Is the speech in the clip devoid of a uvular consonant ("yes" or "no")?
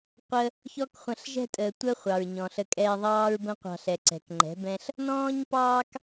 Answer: no